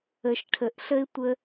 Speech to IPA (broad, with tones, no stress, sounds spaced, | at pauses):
ə˨ ʃ ʈʰ ə˨ ʔ ɬ ə˦ ɪ̯ tʷ ə˧